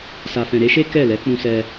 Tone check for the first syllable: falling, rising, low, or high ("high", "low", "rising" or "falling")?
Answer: low